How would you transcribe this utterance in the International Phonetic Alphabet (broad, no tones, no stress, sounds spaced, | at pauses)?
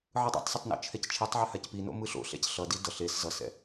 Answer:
ʕ ɯ dˤ o̰ tˤ s ɛ tˤ n o̰ t͡ʃʰ ɛ c t͡ʃʰ i tˤ ʕ ɛ h a c p i n o̰ m ɯ ɬ o̰ ɬ ɛ̰ c ɬ ʌ d i d ʌ ɬ e s z ʌ s ɛ̰